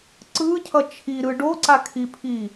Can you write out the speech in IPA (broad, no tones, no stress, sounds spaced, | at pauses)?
ǀ ɯ cʰ ʌ t͡ʃʰ i ɾ ɯ ɖ o ǀ a kʰ i pʰ i